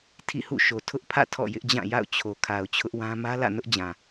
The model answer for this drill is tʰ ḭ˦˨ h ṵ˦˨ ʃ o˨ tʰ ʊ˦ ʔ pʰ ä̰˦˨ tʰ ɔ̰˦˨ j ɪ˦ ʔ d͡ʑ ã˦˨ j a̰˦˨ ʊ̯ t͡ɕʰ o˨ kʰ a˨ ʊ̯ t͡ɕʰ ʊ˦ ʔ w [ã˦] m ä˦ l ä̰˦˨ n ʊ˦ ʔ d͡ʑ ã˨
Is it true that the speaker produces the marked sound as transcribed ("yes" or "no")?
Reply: yes